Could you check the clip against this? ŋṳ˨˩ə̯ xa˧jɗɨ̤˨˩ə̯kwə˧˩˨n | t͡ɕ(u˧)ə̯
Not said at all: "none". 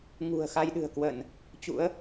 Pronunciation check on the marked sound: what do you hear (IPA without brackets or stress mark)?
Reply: ṵ˧˥